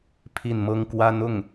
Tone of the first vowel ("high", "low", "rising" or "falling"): falling